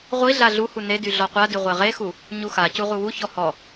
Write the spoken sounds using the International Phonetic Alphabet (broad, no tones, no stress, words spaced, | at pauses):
ʁʷiɮa ɮuhu nedy ɮɔqʷady ʁʷeʁexu | ɲuxacu ʁuwuçɔ hɔ